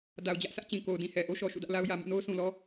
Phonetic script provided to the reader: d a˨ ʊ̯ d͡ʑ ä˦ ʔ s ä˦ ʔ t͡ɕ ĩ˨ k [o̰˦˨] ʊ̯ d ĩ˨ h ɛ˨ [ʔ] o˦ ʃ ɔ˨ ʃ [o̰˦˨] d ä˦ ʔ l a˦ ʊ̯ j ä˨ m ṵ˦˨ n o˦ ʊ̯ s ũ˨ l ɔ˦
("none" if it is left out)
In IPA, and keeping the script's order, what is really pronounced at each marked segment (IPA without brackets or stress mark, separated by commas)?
o˨, ʔ, ṵ˦˨